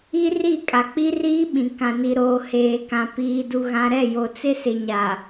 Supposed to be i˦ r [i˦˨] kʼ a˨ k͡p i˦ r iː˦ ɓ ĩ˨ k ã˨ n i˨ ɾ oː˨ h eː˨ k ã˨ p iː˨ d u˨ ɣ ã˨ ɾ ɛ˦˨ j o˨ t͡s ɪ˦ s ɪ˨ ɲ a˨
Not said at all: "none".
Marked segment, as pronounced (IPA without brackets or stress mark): i˦˨